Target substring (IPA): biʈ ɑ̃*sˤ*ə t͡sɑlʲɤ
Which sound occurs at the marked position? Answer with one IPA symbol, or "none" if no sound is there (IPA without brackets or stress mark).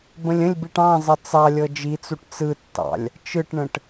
zˤ